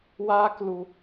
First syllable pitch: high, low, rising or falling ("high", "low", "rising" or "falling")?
high